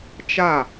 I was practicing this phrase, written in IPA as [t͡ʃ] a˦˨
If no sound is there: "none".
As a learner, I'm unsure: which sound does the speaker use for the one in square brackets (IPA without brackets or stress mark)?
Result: t͡ʃ